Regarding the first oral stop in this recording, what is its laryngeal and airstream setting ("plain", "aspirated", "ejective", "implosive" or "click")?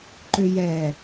click